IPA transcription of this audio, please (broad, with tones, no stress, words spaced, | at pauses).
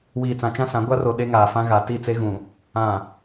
wiː˨t͡sã˨t͡ʃã˦sã˨˦ ɡʷa˦ro˨ ɗe˦ŋaː˨fã˦ ɣa˨ ti˦˨t͡se˦ɣũ˨ | ã˨